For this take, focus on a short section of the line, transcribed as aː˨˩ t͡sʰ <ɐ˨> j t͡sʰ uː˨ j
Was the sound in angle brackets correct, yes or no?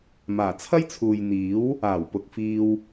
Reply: no